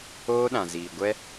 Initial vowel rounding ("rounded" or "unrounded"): rounded